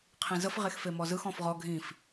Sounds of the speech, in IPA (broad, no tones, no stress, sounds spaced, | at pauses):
qʰ ĩ z ə f ʁ e x f e m ɔ z ɯ x ɔ̃ f ʁ ɔ ɡʱ ĩ f